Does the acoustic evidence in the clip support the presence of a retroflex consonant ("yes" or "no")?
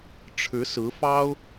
yes